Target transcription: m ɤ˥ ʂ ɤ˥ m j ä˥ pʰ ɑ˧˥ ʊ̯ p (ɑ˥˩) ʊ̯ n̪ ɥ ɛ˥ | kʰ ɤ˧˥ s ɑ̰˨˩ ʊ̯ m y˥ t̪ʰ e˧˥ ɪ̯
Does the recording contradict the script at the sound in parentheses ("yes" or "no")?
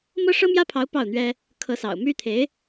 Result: no